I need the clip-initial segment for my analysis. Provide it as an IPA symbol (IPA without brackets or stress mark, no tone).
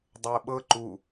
dˤ